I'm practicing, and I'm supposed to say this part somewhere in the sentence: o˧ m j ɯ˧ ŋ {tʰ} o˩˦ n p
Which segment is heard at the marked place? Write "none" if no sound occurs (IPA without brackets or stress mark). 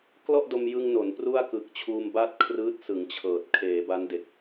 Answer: n